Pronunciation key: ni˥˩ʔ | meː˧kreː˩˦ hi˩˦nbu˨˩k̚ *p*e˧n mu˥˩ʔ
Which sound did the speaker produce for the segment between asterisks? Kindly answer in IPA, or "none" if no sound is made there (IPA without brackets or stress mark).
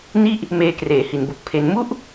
pʰ